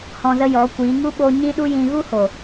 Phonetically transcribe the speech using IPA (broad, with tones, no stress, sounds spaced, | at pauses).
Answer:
h ɔ̃˧ z ə˦ j ɔ˨˦ kʷ iː˨˦ ŋ u˦ ɓ o˧ ɲ ĩ˦ ɗ u˦ j ĩ˧ ɣ u˦ h o˨